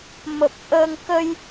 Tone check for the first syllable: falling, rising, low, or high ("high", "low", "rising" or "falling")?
low